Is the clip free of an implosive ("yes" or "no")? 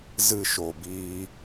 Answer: yes